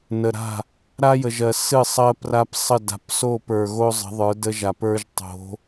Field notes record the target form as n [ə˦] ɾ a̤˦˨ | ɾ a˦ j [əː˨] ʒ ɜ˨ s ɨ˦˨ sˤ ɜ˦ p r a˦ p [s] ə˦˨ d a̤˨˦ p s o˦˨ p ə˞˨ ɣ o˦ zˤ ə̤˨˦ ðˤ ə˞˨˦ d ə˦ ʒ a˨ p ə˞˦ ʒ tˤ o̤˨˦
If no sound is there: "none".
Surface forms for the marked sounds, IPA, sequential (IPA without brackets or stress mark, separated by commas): ə˨, ə˨, sˤ